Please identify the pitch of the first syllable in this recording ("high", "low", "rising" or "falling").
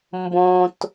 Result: low